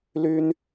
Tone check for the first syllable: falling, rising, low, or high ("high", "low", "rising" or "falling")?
high